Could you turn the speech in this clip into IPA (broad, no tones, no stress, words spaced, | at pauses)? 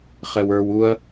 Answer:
χɛwə˞w uɐ̯